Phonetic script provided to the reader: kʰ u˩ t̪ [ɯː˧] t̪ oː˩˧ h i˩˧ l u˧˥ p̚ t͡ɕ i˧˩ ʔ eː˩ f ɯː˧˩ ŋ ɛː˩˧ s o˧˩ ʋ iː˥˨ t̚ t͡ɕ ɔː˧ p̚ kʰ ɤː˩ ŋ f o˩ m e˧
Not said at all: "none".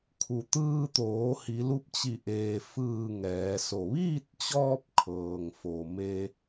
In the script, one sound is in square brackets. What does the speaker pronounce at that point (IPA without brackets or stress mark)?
ɯː˧